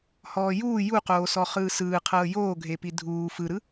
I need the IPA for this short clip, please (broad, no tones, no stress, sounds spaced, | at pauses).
h ɔː j uː j u q oː s ɔ χ ɯː s ɯː qʰ ɤː j oː ɡʱ e p i dʱ uː f ɯ ɾ ɯ